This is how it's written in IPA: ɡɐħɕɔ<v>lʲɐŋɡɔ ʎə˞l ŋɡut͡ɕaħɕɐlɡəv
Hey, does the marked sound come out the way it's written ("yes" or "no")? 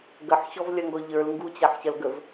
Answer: yes